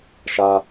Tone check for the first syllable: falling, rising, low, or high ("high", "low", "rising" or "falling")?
low